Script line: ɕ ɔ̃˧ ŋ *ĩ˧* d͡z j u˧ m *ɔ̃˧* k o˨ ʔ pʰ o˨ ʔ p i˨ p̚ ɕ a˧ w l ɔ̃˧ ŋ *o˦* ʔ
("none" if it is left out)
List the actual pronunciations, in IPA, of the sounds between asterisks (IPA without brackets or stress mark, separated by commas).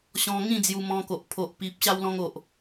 ĩ˥˧, ɔ̃˧, o˨